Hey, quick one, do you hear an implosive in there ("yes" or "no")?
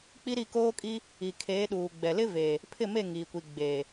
yes